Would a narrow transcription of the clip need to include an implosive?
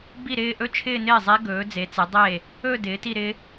no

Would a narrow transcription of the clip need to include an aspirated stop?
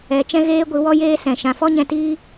no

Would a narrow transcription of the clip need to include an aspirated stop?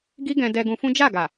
no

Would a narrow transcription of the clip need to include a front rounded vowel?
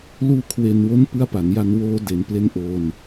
no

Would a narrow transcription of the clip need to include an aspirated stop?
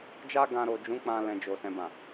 no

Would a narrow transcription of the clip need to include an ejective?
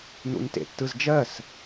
no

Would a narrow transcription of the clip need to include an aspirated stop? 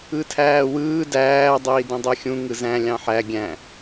yes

